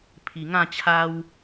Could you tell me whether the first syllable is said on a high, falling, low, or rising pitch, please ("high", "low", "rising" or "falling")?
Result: low